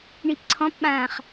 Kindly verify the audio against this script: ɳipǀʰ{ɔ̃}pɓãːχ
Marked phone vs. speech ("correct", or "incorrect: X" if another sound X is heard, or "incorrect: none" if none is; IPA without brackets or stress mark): correct